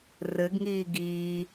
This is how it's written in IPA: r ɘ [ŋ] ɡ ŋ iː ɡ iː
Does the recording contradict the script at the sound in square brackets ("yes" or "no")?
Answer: yes